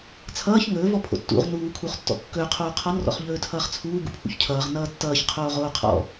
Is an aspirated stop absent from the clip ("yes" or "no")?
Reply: no